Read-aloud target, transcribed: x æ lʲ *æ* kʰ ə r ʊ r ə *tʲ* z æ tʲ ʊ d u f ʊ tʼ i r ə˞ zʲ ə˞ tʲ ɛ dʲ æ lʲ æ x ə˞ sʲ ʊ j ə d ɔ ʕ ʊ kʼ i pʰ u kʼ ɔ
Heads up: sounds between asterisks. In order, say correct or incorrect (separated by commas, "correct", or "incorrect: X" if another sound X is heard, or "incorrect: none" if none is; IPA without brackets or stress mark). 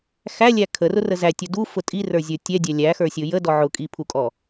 correct, incorrect: none